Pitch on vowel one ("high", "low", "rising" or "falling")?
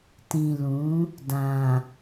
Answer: low